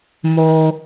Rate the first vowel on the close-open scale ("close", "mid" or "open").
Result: mid